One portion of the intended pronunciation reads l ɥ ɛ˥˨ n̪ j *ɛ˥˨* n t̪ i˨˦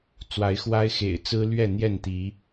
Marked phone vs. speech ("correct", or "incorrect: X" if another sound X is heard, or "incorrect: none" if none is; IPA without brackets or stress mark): correct